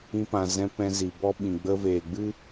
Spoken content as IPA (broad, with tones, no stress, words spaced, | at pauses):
ĩ˧pã˨zɛ̃˧ pɛ̃˧zi˨ bɔ˦ɓĩ˨ ɡ͡bə˧veː˨ɡ͡bɨ˦